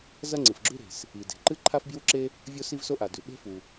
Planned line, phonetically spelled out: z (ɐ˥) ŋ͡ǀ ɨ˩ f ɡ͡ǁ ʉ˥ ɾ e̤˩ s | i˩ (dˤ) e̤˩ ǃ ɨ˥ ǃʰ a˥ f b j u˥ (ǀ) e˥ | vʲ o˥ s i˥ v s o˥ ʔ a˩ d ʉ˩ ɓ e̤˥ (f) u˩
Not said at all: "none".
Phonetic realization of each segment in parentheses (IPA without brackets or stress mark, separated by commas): ɐ˥, d, ǁ, f